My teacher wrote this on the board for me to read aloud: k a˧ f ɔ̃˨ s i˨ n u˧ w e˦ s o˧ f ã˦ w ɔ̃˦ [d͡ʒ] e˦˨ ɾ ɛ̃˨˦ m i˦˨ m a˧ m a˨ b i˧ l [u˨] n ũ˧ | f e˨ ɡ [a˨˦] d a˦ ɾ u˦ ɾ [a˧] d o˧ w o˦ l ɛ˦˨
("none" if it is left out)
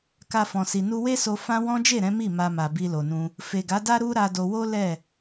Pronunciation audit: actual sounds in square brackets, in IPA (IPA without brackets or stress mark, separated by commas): d͡ʒ, o˨, a˨˦, a˧